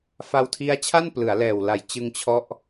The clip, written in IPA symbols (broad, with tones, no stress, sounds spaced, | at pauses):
f a˧ w tʰ i˦˥ a̯ t͡ɕʰ a˥˩ n p l ɯ˩˦ a̯ l ɛː˨˩ w l a˨˩ j t͡ɕ ɯ˧ ŋ t͡ɕʰ ɔ˦˥ ʔ